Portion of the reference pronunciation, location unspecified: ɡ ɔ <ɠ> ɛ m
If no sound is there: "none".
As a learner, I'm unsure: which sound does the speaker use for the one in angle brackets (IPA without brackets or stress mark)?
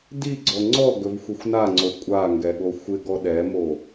ɗ